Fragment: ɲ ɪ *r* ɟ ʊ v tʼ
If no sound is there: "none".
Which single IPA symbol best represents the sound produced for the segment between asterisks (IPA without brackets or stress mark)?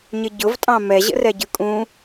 none